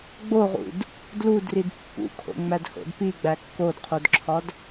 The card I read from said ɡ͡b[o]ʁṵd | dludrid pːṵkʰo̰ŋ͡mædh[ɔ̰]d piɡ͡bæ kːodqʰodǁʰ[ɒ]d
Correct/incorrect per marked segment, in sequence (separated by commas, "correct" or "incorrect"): correct, incorrect, correct